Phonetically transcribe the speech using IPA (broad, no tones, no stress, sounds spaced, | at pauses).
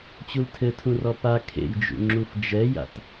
t͡ɕ u l tʰ ɘ tʰ ũ r ɔ p a kʰ ḛ j d͡ʒ ṵ ŋ͡ǁ u f d͡ʒ ɛ j a̰ t